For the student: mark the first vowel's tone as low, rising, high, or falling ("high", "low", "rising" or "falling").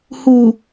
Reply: low